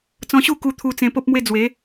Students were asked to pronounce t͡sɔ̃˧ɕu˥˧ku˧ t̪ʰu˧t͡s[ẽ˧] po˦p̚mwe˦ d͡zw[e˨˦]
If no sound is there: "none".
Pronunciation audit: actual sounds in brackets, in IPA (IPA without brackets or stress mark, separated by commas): ẽ˧, e˨˦